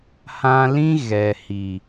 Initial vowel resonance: nasal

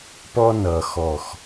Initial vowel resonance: oral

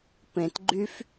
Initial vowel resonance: nasal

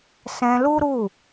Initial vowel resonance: nasal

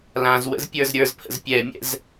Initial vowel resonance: nasal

